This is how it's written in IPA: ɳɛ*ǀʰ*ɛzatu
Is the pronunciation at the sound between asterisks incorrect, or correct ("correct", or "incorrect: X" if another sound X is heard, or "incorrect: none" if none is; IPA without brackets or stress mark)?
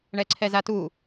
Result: correct